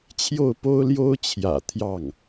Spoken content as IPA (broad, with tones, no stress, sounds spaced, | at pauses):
t͡ɕʰ j o˥˩ ʊ̯ p o˥ ʊ̯ l j o˥ ʊ̯ t͡ɕʰ j ä̰˨˩ t̪ʰ j ɑ˥˩ ŋ